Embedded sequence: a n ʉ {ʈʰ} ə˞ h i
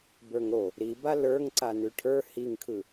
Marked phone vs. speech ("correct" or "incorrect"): correct